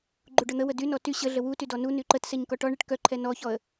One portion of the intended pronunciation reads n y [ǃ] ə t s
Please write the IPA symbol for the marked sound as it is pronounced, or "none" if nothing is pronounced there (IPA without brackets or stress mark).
ǃ